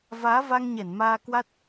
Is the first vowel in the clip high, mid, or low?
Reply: low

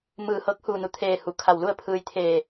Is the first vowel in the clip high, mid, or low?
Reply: high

